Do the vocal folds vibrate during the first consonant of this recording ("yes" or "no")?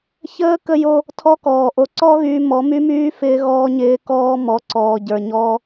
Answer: no